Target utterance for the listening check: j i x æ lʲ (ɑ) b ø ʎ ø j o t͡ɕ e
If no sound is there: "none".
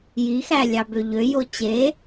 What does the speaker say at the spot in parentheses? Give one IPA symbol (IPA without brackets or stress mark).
ɑ